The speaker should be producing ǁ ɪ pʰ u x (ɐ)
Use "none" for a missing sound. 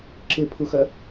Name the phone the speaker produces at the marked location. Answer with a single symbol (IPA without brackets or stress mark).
ɐ